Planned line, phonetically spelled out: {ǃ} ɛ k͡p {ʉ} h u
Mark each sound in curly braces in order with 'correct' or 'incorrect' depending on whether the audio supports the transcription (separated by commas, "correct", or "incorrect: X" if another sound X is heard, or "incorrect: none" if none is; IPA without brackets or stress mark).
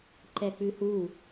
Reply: correct, correct